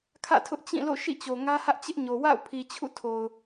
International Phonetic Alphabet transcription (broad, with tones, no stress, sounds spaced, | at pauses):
kʰ ä̰˦˨ tʰ ʊ˦ ʔ t͡ɕ ĩ˦˨ l o̰˦˨ ʃ ḭ˦˨ t͡ɕ o˨ ŋ ä˦ h ä˦ ʔ t͡ɕ ɪ˦ ʔ ɲ o˨ w a̰˦˨ ʊ̯ pʰ i˨ t͡ɕʰ ṵ˦˨ tʰ o˨ ʊ̯